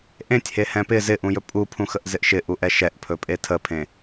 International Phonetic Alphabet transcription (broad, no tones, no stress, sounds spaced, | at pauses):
ʔ ẽ tʲ h e h ɛ̃ p ɪ z ɪ ʔ ũ j ɵ pʼ u pʰ ũ x ə ʔ z ɪ ʔ ʃ ɪ ʔ u ʔ ɛ ʃ ɛ ʔ pʰ ɵ pʼ e tʰ ə pʰ ẽ